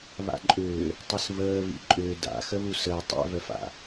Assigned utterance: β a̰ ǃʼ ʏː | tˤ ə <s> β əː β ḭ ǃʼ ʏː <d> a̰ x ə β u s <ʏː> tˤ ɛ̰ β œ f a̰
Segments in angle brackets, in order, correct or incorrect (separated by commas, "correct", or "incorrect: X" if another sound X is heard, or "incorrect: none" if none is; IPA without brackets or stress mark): correct, correct, incorrect: əː